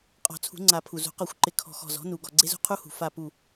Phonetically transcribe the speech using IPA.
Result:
qʼ ɔ̤˨˩˦ t͡sʰ ṳ˨˩˦ ŋ͡ǀ a˨˩˦ pʰ u˩ z ṳ˨˩˦ q ɔ˨˩˦ xʷ ǃ ɪ˩˧˩ kʰ ɔ̤˧˩ x ɔ̤˧˩ z ɔ̤˩˥ n u˩ ɡ ɔ˧˩ ɡ͡ǀ e˦˥ z ṳ˦˥ qʰ u˦˥ h ṳ˩ f a˧˩ p u˧˩

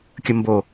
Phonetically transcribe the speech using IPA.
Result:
kʲ ə˥ m b o˦˨

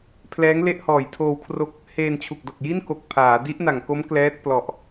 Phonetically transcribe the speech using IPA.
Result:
pʰ l ɛː˦˥ ŋ l e˥˩ ʔ h ɔː˨˩ j tʰ oː˧ w kʰ r o˦˥ k̚ | h eː˧ n t͡ɕʰ u˨˩ k̚ d o˨˩ k̚ j i˥˩ n k o˨˩ k̚ pʰ aː˩˦ d i˦˥ ʔ n a˨˩ ŋ k o˦˥ m k l ɛː˦˥ t̚ p l ɔ˨˩ ʔ

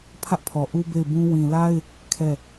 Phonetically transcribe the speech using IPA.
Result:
pʰ ä˦ ʔ pʰ ɔ˨ ʔ u˦ b e˦˨ ɪ̯ b ũ˦ w ĩ˨ l a˦ ɪ̯ | kʰ ɛ˦˨

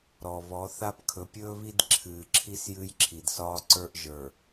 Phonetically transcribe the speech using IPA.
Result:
ɾ ɔ˨ β ɔ˨˦ θ a˦ p kʰ ɵ˨ pʲ ɵː˦ β i˦ d ǁʰ ɨː˨ ǁʰ i˦ s j ɨ˦ j ǁʰ i˨ d s ɒː˦ ǀ ə˞˦ ʔ ʒ ə˞˨

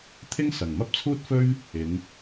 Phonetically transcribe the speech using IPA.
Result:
t̪ʰ ɪ˥ ŋ s ɐ˨˩ ŋ m ɐ˥ p̚ t͡sʰ uː˥ t̚ f ɵ˥ ɥ | ɪ˨˥ ŋ

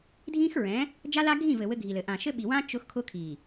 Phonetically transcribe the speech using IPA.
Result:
dʱ ĩ˦ x ɹ ɛ̃˨˦ | d͡ʒ a˦ l a˦ ɡʱ ĩ˦˨ v ɘ˨ w ɘ˦ ɡʱ i˨ l ɘ˨ ʔ ã˨ ʃ ɘ˦ ɓ i˨ w ã˦ t͡ʃ ʊ˦ x kʰ ʊ˦ kʰ i˨

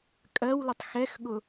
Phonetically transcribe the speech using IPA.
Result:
kʼ ɜ w l ə tˤ x ɛ x ɠ ʊ

